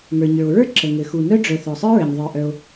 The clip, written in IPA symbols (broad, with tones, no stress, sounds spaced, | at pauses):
ŋ ə˞˩ ɲ ə˞˩ o̯ ɹ ə˞˥ ǁ ə˩ ŋ ɘ˩ x u˩ n œ˥ ɖ͡ʐ œ˩ θ œ˩ sˤ ə˞˥ ɹ ɘ˩ ɲ ðˤ ə˞˩ ʔ œ˩ o̯